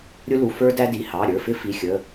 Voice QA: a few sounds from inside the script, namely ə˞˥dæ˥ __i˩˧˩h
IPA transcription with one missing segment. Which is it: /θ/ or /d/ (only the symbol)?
d